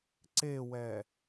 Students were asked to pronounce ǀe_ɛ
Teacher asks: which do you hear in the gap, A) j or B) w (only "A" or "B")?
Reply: B